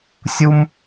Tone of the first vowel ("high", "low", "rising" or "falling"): high